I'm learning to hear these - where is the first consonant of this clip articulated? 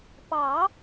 lips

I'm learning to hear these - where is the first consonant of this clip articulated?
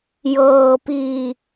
palate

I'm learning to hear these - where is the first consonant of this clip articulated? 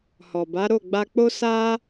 throat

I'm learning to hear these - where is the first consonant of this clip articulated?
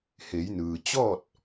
throat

